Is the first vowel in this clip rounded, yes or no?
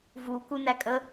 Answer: yes